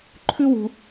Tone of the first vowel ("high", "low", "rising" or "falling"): high